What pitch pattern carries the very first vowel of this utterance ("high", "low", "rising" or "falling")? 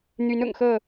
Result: rising